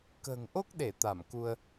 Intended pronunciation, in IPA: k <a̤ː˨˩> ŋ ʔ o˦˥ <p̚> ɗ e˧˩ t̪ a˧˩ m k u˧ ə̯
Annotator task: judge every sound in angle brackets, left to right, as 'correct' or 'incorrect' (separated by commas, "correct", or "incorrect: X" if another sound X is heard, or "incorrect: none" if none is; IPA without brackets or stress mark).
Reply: incorrect: ə̤ː˨˩, incorrect: k̚